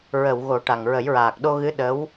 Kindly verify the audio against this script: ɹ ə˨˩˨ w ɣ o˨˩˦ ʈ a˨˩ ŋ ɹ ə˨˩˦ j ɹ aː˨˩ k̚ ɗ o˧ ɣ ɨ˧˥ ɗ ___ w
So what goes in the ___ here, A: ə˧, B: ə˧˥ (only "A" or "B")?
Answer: B